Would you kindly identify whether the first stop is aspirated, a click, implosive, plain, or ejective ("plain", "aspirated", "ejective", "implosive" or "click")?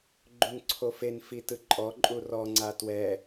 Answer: click